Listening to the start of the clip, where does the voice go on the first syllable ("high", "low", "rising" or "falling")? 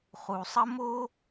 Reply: low